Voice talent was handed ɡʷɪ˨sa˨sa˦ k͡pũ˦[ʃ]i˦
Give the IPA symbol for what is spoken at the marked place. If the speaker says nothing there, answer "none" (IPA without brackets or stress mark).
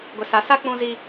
z